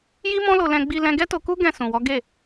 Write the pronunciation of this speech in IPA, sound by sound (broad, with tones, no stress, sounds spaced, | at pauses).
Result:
j i˦ m ɔ̃˦ l o˧ l ɛ̃˧ ɡ͡b i˧ l ɛ̃˧ ɡ ɛ˦ t o˧ k u˦ ɡ ɛ̃˦˨ s ũ˨ w ɔ˨˦ ɡ e˦˨